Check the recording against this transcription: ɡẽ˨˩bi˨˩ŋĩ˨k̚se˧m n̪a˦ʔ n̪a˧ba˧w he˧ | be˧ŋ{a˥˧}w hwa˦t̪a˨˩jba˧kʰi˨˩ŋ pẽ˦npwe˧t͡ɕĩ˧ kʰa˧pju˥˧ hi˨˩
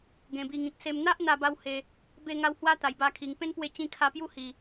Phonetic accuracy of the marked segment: incorrect: a˧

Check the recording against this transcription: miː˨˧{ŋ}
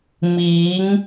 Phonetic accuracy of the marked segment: correct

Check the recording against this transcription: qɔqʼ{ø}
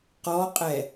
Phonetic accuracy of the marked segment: incorrect: ɛ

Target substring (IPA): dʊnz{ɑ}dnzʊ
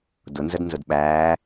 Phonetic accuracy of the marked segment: incorrect: ə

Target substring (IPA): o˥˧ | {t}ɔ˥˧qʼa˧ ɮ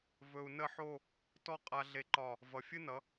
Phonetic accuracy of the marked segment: correct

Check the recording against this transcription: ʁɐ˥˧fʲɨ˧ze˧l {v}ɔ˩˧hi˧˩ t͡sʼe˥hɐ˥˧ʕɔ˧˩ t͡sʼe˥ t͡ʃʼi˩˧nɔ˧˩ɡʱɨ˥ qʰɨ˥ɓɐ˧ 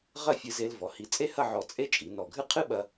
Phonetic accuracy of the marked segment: correct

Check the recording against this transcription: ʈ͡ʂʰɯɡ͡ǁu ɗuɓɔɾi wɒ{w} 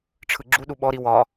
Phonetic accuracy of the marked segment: incorrect: none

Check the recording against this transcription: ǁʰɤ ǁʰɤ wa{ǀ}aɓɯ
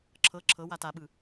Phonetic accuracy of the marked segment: incorrect: t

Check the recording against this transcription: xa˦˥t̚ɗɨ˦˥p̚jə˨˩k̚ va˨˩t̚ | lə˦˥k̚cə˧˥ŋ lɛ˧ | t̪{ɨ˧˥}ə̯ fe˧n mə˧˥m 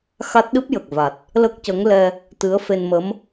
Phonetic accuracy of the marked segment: correct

